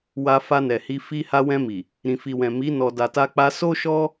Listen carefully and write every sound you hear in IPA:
wa˧ fa˧nɛ˨hi˧ fi˧ ha˧wɛ̃˧ mi˨ | ɾĩ˨fi˨wɛ̃˨ mi˨˦ nɔ˧ da˨ta˧k͡pa˧ so˦ʃɔ˦

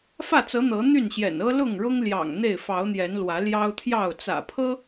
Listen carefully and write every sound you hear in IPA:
fä˥˨t͡sɤ˨˦ n̪ɤ˨˦n̪y˥˨nɕjɛ̰˨˩n ɤ˦lʊ˥˨ŋɻʊ˦ŋljɑ̰˨˩ŋ n̪e˥˨ɪ̯fɑ˨˦ʊ̯n̪jɛ˨˦n lwä˨˦ljɑ˦ʊ̯t̪ʰjɑ˥˨ʊ̯ t͡sä̰˨˩pʰɤ˦

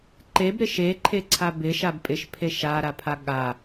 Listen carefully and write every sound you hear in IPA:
ǃebɾɪ ʃeǃʰeǀʰa bɪʃab pʼɪʃpʰe ʃaɾapʰa ɠa

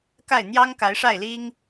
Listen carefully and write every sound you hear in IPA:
ka˥˩ɪ̯n̪jɑ˥ŋ ka˧˥ɪ̯ʂa˥˩ɪ̯li˥ŋ

